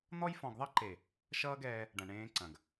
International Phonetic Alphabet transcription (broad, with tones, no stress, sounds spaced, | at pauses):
n̪ ɔ˦ j f ɔ̃˨ ɡ ðˤ ʌ˦ ǃ e˨ | ʃ ʌː˦ ɡ ɛː˧ | ɖ ɐ̃˨ ɳ ẽː˧ ǀ ɐ̃˨ ɡ